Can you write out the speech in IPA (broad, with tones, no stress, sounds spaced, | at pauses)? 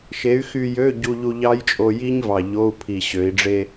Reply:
ʃ e˨˥ y̯ x y˧ j ø˧˥˧ ɟ u˧ ʎ u˧ ʎ ɑ˦˥ j t͡ʃʼ o˧ j i˦˥ ɲ v ɑ˨˩ ʎ o˧˥˧ u̯ pʰ i˨˩ ɕ ø˩˧ i̯ ɖ͡ʐ e˧